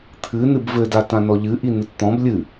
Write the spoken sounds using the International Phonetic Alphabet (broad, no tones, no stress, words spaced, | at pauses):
t̪ʰɨ nɨbvɘda tãnɔʎɨʔi nɨtt̪ɔ̃b lʲɨ